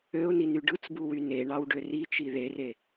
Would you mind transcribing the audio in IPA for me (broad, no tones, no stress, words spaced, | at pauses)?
øʊ̯niny ɖɯt͡sbuwy neɳɑw ɖørit͡ʃi ðere